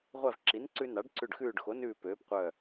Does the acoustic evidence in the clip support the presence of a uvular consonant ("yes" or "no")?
yes